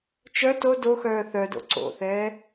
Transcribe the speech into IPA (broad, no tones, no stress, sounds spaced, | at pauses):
t͡ʃ œ t o d o x œː θ œ d o̰ ǀ o̰ θ ɛː